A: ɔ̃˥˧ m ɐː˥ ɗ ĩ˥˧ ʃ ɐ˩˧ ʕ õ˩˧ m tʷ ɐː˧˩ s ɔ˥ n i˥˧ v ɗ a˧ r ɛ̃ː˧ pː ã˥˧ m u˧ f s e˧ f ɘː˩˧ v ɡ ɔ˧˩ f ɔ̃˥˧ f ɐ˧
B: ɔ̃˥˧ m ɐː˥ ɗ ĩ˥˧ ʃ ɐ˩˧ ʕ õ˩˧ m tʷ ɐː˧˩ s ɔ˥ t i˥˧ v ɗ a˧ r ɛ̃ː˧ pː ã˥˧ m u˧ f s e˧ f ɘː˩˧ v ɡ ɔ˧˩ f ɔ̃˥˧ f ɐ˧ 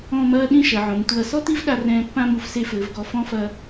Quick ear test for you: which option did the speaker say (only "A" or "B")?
B